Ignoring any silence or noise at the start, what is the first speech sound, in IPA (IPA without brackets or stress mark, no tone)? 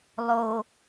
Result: lˠ